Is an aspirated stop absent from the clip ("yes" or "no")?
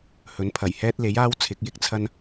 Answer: no